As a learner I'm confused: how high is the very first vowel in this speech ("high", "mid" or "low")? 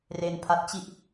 mid